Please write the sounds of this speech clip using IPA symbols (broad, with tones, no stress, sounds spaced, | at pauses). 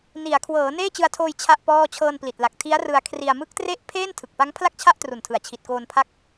n i˩˦ a̯ kʰ w ɤː˩˦ n eː˥˩ t͡ɕ ɯ˧ a̯ tʰ oː˧ j t͡ɕʰ a˥˩ ʔ p ɔː˥˩ t͡ɕʰ ɤː˧ n p l i˨˩ t̚ l a˨˩ k̚ tʰ i˦˥ a̯ r ɯ˧ a̯ kʰ r i˧ a̯ m ɯ˦˥ k̚ t r e˦˥ ʔ pʰ eː˥˩ n tʰ ɯ˨˩ k̚ p a˦˥ ŋ pʰ l a˥˩ k̚ t͡ɕʰ a˥˩ ʔ t r u˨˩ n tʰ ɯ˩˦ a̯ t͡ɕʰ i˨˩ t̚ k oː˧ n pʰ a˦˥ k̚